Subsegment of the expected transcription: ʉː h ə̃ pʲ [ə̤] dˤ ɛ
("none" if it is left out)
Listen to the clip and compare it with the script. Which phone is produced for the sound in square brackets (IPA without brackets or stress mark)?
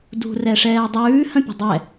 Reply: ə̤